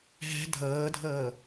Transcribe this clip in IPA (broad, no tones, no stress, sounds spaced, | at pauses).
ɦ ɛ̤ dʱ ɤː dʱ ɤː